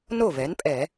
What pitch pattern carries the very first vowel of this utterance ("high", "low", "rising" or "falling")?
falling